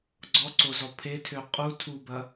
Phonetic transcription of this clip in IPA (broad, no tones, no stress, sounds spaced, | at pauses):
ɡ͡ǀ ɔ ǀ o z ɔ pʰ e tʰ ø qʼ u tʰ u b ɐ